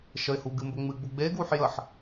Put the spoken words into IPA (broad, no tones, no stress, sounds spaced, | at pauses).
ʃ ə ɪ̯ h u ɡ ɨ m b ə ŋ͡m ɨ ɡ͡b u ɡ͡b e ɡ w u ħ j ə ħ